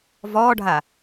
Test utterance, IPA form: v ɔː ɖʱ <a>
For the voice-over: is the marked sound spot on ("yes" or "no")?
yes